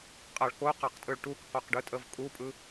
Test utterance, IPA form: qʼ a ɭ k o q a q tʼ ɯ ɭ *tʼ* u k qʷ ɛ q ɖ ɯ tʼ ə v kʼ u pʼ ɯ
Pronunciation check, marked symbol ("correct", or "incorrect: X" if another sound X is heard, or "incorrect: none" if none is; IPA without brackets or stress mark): incorrect: ʈ